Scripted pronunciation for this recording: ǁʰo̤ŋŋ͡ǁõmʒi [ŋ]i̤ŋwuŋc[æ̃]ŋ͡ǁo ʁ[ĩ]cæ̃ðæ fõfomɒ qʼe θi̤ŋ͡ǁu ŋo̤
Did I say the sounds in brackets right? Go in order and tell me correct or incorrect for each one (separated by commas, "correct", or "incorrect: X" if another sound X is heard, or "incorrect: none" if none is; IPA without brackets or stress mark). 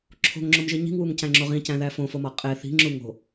incorrect: ɲ, correct, correct